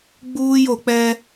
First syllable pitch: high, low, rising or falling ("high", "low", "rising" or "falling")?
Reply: high